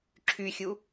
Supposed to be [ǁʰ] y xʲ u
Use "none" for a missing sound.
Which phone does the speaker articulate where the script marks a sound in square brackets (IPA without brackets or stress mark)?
ǁʰ